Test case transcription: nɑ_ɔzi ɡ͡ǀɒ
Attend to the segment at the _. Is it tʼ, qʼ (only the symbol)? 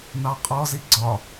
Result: qʼ